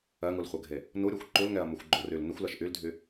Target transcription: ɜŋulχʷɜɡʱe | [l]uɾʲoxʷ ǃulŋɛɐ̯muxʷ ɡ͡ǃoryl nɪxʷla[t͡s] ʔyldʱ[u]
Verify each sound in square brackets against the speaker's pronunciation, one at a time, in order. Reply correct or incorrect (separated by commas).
incorrect, incorrect, incorrect